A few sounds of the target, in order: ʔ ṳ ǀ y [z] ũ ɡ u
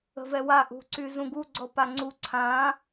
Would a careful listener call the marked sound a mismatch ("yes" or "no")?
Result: no